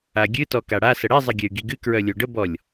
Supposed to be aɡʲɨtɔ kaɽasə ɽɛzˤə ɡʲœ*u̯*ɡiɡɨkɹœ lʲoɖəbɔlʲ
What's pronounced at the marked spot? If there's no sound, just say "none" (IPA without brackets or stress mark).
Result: y̯